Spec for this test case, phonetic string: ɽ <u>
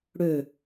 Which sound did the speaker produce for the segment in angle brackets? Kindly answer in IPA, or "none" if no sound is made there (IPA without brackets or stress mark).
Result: ø